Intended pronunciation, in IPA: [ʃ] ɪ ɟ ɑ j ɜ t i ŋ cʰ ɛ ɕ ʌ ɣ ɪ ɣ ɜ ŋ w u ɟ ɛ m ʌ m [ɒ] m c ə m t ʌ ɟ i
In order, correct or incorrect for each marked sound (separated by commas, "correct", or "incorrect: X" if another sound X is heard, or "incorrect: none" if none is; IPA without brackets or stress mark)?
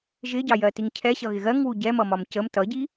incorrect: ʒ, correct